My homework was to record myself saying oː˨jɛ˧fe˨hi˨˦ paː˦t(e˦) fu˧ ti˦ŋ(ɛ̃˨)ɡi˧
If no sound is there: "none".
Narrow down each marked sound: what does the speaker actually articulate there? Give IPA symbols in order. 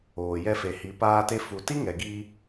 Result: e˦, ɛ˨

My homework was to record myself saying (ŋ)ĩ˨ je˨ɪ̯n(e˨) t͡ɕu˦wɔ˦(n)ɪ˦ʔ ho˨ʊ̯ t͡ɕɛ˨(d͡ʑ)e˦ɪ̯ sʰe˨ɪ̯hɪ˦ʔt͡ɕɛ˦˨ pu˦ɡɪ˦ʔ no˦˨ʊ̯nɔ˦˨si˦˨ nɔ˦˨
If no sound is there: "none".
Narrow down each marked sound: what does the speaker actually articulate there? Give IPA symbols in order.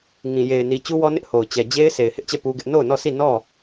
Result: ŋ, i˨, n, d͡ʑ

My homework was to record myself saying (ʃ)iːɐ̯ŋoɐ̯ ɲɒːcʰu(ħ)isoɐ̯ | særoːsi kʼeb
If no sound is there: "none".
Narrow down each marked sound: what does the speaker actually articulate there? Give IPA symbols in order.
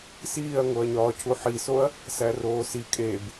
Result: s, ħ

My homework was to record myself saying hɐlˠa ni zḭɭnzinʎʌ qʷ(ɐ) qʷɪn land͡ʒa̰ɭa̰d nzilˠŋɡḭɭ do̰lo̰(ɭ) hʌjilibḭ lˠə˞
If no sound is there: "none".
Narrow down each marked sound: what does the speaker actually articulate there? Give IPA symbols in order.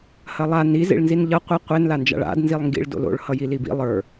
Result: ɐ, ɭ

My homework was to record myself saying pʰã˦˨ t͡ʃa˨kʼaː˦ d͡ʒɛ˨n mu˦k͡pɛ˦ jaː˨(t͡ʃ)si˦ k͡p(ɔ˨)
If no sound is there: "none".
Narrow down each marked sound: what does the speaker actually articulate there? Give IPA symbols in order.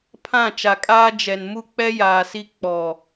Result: none, ɔ˨

